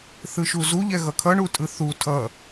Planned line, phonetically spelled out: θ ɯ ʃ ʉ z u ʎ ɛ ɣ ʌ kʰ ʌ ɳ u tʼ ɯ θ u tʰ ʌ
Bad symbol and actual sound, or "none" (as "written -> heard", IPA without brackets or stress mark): ʉ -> u